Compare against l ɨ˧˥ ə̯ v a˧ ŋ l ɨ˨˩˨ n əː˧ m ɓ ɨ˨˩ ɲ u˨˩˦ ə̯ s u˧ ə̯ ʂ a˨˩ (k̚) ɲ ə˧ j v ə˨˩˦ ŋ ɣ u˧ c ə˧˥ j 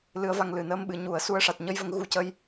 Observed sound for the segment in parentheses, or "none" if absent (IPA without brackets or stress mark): t̚